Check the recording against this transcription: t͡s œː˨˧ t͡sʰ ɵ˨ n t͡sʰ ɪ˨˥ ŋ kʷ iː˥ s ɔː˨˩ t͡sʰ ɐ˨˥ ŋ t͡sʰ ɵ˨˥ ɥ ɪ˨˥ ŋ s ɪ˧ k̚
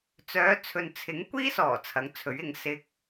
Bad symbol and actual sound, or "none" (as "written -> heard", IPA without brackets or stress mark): none